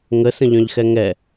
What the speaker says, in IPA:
ŋəsə̃ ʎœ̃ʎxɛŋɛ

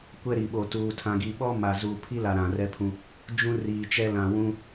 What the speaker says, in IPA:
kʷɛ˦ɾi˨ɓo˨ tuː˨tʰã˨ɡi˨ɓɔ˦ ma˨zuː˨ pʰi˦la˨ ɾã˨rɛ˦pʰũ˦ | d͡ʒũ˦riː˨t͡ʃɛ˦ lã˨wũ˦

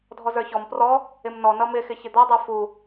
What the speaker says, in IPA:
dʱɔzə˞çɔm prɔ | ɪmnɔnʌ mɪxɪ çɪd̪ɔdˤə˞ fu

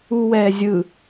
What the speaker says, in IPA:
uwɛːzʲɯ

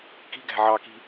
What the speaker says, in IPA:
ki̤ɡæ̤ ʕɑki̤

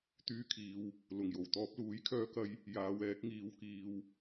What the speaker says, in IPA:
t̪yː˧kʰiː˨˧w | lʊ˨˩ŋjo˨˩w t̪ɔː˧p̚luː˨˥jkʰœː˧kɐ˧j | jaː˨˧wɛː˨˥k̚ ŋiː˨˧wkiː˨w

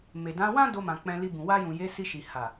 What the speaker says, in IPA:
me˨dã˨˦wã˦ do˧mã˨ k͡pɛ̃˧li˧bũ˨ wa˧jũ˨je˨˦ si˧ʃi˨ ha˨

